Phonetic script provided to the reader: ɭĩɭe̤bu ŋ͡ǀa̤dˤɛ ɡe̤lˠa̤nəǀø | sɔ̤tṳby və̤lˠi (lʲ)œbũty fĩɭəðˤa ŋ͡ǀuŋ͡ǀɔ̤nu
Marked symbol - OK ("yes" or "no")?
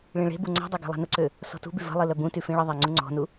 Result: no